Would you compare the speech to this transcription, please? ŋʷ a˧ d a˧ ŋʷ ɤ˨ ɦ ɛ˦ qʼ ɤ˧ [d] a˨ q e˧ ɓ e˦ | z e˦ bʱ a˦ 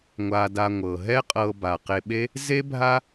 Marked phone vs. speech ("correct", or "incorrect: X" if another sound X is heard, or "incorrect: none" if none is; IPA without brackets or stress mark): incorrect: b